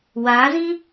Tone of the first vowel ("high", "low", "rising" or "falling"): rising